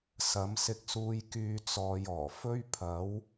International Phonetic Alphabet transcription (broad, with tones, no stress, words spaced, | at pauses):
sɐ˨˧m sɪ˧k̚suː˧j kyː˧ t͡sɔː˨j ɔː˨˩fɵ˥ɥ pʰɐ˨˥w